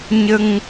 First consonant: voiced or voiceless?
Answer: voiced